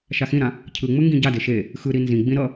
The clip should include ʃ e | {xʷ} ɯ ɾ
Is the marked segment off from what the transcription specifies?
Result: yes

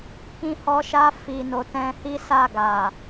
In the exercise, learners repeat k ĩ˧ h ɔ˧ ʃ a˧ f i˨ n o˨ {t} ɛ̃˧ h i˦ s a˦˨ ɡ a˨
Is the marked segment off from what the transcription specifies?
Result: no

